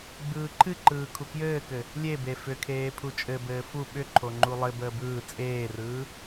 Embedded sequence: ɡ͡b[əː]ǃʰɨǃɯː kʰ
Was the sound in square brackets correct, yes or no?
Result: no